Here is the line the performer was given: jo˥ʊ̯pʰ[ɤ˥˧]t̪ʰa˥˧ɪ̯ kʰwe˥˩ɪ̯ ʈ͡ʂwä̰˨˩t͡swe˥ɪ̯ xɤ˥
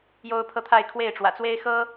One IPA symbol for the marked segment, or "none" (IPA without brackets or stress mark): ɤ˥˧